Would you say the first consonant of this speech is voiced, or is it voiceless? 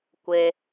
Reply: voiceless